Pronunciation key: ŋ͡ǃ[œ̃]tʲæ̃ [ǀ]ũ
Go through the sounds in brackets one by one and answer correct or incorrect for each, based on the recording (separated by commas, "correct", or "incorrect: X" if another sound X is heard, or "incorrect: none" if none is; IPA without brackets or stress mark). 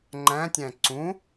incorrect: æ̃, correct